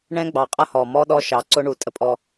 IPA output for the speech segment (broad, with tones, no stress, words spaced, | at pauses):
ɳɛ̃˦ɡ͡bɑ˨qʼʌ˦hɔ˨ mɔ˦ɗɔ˦ʃɑ˨ ǀʊ˦ɳu˨ tʼə˦pʼɔ˦